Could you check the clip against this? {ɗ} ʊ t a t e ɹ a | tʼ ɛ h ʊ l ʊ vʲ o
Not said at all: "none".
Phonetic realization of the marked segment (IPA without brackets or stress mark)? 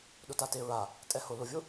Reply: ɗ